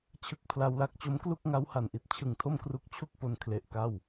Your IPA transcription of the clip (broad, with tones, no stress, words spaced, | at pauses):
t͡ɕʰɯ˥˩k̚pʰla˦˥wla˦˥k̚ t͡ɕo˦˥mklu˥˩k̚ŋa˦˥w ha˨˩nʔi˦˥t̚ t͡ɕʰɯ˨˩ŋtʰo˥˩m kru˦˥k̚ t͡ɕʰu˥˩k̚ po˧n kʰle˨˩ʔ ka˥˩w